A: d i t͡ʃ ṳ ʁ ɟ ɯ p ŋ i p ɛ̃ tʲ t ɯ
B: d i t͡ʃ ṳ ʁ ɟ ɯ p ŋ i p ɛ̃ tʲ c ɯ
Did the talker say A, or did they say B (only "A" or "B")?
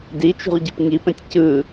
B